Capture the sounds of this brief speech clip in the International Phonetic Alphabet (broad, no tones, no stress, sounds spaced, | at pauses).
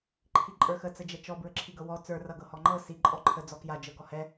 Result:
ǃʰ i ǃʼ ə˞ x ə t͡s ə d͡ʒ ɛ t͡ʃ ɔ b ɹ ə ǁʰ i ɡ ɤ w ɔ t͡s ə˞ r ʌ ɡ ɤ h ɔ ŋ͡ǃ ɤ s i ǃʼ ɔ ǃʰ ə d͡z ɔ k j a d͡ʒ ɤ ɡ ɔ h ɛ